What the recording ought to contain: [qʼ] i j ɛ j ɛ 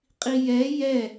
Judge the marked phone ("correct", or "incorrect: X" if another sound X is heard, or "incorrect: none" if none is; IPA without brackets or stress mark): correct